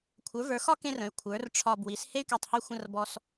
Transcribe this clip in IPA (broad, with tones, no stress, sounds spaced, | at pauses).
kʷʰ ə˞˩˥ v ə˞˩˥ x ɒ˥ k ẽ˥ r ə̃˩˥ y̯ kʷʰ ə˞˩˥ r ʈ͡ʂʰ ɒ˧ b w i˩˥ s h e˥ y̯ k e˧ tˤ h y˧ xʷ ə̃˧ r b ɔ˥ s